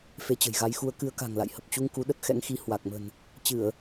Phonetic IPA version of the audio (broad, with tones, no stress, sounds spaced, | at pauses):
f e˨˦ t͡ɕ ə̤˨˩ j ɣ a˨˦ j x u˧ ə̯ k ɨ˨˦ ə̯ k a̤˨˩ ŋ l a̰˧˨ j h ə˨˩ p̚ t͡ɕ u˧ ŋ k u˨˦ ɗ ə˦˥ t̚ x ɛ̰˧˥ ŋ x i˨˦ h w a˨˩ k̚ m ə̤˨˩ n | t͡ɕ ɨ˧˩˨ ə̯